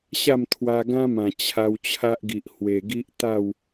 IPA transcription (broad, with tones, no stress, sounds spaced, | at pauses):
ɕ a˥˧ m t̪ʰ w a˧ ɡ ã˦ m ã˨˩ t͡ɕʰ a˧ w t͡ɕʰ a˦ ʔ ɡ i˨ ʔ h w e˨˩ ɡ i˦ ʔ t̪ a˥˧ w